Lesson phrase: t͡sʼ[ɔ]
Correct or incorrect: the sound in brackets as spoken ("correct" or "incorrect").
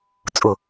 incorrect